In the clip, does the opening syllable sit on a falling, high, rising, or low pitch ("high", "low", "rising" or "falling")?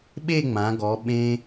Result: falling